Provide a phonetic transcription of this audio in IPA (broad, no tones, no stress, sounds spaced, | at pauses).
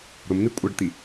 ɾ ʊ m n̪ i kʷʼ ə ɖ t̪ i